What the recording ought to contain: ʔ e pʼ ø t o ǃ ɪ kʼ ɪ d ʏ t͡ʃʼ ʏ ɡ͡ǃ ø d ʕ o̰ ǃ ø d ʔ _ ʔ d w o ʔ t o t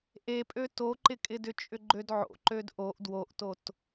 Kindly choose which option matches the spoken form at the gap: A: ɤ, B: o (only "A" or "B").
B